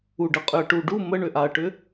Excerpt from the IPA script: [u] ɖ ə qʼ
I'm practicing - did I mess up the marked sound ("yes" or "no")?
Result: no